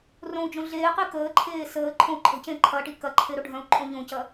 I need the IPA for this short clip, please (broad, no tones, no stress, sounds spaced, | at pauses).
r õ u̯ d͡ʒ õ ɮ eː q i k əː ǃʰ eː s əː ǃʰ õ u̯ ǃʼ ə̤ c ẽ ǃʰ ɐ ʈ i k ɐ ǃʰ e ɾ o ɖʱ œ̃ u̯ ǃʼ õ ʎ õ c ɐ